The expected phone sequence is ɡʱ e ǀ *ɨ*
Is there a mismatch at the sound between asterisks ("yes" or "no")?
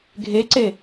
yes